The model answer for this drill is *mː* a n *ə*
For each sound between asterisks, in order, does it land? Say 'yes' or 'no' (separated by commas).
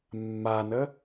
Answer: yes, yes